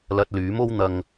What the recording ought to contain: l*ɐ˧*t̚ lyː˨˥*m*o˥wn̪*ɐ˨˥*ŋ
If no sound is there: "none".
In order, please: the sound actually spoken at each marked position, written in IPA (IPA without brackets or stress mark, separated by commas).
ɐ˧, m, ɐ˧